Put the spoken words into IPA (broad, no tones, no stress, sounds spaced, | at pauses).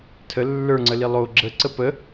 tʰ ə lː ə˞ ŋ͡ǀ ə l i lˠ o ɡ͡ǁ ə ǀ ə p ə